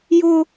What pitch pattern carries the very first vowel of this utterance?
high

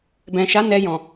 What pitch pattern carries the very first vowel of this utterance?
low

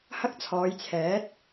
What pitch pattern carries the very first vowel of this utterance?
high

